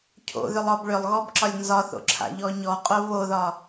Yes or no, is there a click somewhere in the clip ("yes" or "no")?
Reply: yes